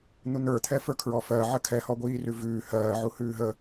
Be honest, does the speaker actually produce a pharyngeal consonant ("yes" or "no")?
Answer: yes